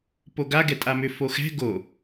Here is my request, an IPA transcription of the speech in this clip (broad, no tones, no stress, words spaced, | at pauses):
poɡaɡɛtʼa mʏ foxɛ̤ ɡo